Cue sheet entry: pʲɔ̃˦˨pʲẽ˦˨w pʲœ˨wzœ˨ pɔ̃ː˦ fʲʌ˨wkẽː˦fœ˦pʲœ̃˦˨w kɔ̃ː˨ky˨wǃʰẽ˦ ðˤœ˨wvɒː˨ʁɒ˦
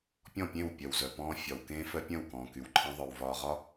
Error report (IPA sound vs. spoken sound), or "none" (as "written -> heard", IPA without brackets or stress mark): ʌ˨ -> ɒ˨